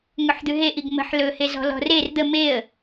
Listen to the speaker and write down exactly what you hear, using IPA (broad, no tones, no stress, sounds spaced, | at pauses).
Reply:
ŋ ɵ ħ d̪ ʉ ɦ e ʔ i ɡ m ə̤ ħ l ɵ h e z ɔ̤ l ɔ̤ r e r d̪ ə m e ə̯